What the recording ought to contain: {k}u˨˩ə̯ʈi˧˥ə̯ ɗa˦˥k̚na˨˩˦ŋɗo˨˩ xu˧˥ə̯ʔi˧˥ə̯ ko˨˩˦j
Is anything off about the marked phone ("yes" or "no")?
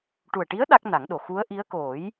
yes